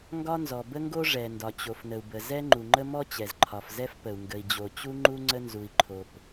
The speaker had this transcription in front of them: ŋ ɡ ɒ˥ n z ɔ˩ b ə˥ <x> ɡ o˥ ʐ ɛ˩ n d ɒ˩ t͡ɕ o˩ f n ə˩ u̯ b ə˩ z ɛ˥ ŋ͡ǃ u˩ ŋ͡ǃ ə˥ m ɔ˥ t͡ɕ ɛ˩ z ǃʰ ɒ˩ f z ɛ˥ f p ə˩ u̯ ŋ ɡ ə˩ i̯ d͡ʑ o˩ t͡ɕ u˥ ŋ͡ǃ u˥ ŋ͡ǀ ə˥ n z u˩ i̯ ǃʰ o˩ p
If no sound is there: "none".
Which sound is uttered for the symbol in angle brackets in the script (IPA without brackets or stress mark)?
ŋ